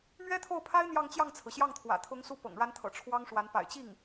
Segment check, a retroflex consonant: present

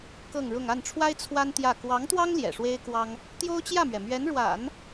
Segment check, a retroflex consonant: present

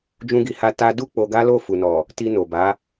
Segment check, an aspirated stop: absent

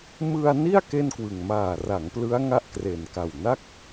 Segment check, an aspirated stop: absent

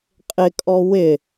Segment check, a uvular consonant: present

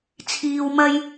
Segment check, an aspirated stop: present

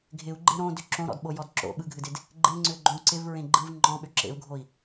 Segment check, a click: present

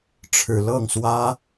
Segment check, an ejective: absent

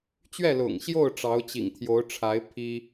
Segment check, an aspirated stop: present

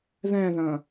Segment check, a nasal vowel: present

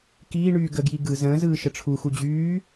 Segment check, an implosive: absent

